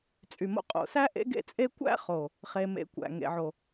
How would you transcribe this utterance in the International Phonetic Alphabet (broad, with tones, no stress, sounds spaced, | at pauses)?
t͡sʼ y˨ m o̰˧ qʼ o̰˨ s æ˦ ʔ ḛ˦ ɡ ḛ˦ t͡sʼ e˦ kʷ æ̰˦ χ o˨ | χ e˧ m ḛ˧ kʷ æ̰˨ ŋ ḛ˨ ʕ o˨